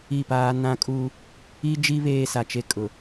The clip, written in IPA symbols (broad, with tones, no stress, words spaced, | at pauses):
i˦˨paː˦ nã˦kʼu˦ | i˦d͡ʒi˦ βeː˦sa˨t͡ʃe˦ kʼʊ˨